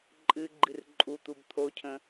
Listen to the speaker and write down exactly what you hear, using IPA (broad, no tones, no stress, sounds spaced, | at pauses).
ǃʼ ɨ ɡ͡ǃ ɨ r ǃʼ u t̪ u b t̪ʰ o cʰ ə̃